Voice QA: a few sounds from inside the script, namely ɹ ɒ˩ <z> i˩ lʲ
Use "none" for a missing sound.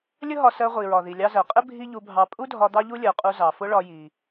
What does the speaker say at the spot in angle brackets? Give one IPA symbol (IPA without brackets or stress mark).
ð